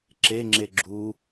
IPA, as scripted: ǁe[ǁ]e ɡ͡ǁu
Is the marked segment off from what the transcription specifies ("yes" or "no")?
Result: yes